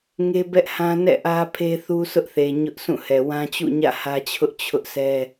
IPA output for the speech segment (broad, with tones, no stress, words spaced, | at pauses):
ŋe˦bɛ˦ʔhã˦ nɛ̰˦˨ ʔä˦pʰe˦θu˦ sʰʊ˦ʔθe˨ ɲʊ˦ʔsʰũ˦˨hɛ˨ wã˦t͡ɕṵ˦˨ɲä̰˦˨ hä˦t͡ɕʰʊ˦ʔ t͡ɕʰʊ˦ʔsʰɛ˦